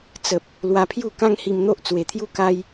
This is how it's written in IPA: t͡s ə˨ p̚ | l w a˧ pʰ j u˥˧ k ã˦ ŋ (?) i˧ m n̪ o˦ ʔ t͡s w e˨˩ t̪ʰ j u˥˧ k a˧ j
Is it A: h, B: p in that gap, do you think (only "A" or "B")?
A